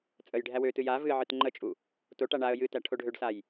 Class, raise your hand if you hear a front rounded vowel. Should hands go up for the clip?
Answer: yes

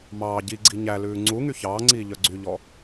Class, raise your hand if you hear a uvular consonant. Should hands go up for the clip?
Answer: no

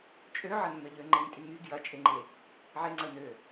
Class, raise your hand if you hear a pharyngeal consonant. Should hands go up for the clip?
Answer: yes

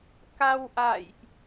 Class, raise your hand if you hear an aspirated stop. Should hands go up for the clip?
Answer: no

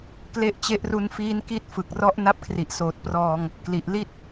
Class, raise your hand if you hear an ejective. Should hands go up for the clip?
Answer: no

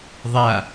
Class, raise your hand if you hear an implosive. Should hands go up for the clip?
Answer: no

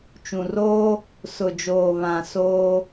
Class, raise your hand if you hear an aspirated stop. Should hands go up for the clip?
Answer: no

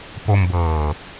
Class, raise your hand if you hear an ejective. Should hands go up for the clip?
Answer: no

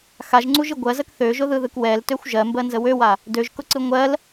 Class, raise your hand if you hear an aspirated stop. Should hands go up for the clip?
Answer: no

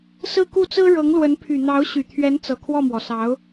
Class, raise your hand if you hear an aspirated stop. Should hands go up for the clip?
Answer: yes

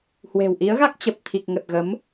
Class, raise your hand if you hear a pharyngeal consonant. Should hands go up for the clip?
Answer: no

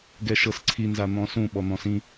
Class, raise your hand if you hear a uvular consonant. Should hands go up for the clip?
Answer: no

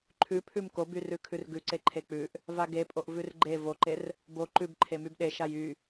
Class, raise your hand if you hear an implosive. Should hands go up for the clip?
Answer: yes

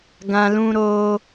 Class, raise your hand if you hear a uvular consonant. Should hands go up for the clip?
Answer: no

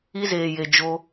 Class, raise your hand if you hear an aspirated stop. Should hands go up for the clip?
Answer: no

